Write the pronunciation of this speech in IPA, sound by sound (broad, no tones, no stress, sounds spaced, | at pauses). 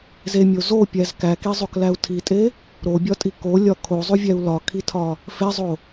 z e mʲ o z o pʲ æ z k æ k i zˤ o k l æ u̯ tʰ i tʼ e | ɾ o bʲ ɒ tʼ i k o lʲ ɒ kʰ o zˤ u vʲ æ u̯ l ɒ kʰ i tʰ ɒ | f e zˤ o